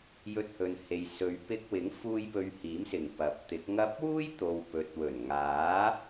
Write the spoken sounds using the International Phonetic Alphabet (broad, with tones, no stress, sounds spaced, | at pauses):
j ɵ˧ t̚ h ɵ˨ n h e˨ j s ɵ˨˧ ɥ p ɪ˧ k̚ w ɪ˨˥ ŋ f uː˧ j p ɵ˨ ɥ h iː˨˥ m s ɪ˨˩ ŋ p ɐ˨˥ p̚ t̪ ɪ˨˥ k̚ ŋ ɐ˥ p̚ w uː˥ j t̪ o˨ w p ɵ˨˥ t̚ w ɵ˨˩ n ŋ aː˨˥